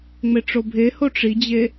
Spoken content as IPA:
ŋ͡m e ʈ͡ʂ o bʱ e h o ʈ͡ʂ i d͡ʑ e

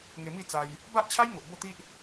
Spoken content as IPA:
ŋ e˧ m i˥˧ t͡s a˧ j | b a˦ ʔ t͡ɕʰ a˦ j ŋ o˨ ʔ b o˥˧ t̪ i˦ ʔ

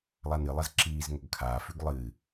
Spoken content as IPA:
lˠ a n ɨ lˠ ɐ z ǁ iː z ŋ ɵ ɡ kʰ aː f ʉ ɡ lˠ ɨ

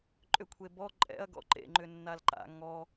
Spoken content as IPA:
ǃʼ ʏ kʷʰ e b ɔ ǃʼ ɛ̰ ɐ̯ ɡ ɔ̰ ǃ ḛ ŋ͡ǃ ʏ nː a l ǃ a̰ ŋ ɔ

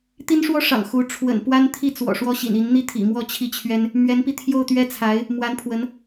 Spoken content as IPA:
t̪ i˥ n ʂ w ɔ˥ ʂ ɑ̰˨˩ ŋ x u˧˥ ʈ͡ʂʰ w ə̰˨˩ n p w a˥ n t̪ʰ i˥˩ t͡s w ɔ̰˨˩ ʂ w ɔ˥ ɕ ḭ˨˩ n i˧˥ n n̪ i˥ t̪ʰ ḭ˨˩ m w ɔ˥˧ t͡ɕʰ i˥˩ t͡ɕʰ ɥ ɛ˥ n | m ɥ ɛ˧˥ n p i˧ t̪ʰ j o˥˩ ʊ̯ t̪ ɥ ɛ˥ t͡sʰ a˧˥ ɪ̯ | m w a˧˥ n pʰ w ə˧˥ n

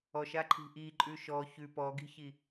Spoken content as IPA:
ɔ ʃ a ǃʰ i̤ ʔ i ǃʼ ʉ ʃ ɔ ç ʉ p ɔ ɡ i̤ ç i

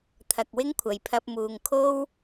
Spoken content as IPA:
t̪ʰ ɐ˨ k̚ w ɪ˥ ŋ kʷʰ ɐ˨ j pʰ ɐ˧ p̚ m uː˨ ŋ kʰ o˥ w

